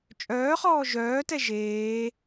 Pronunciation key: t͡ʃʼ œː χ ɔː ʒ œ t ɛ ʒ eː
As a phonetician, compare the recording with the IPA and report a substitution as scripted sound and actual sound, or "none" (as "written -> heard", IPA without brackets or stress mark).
œ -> œː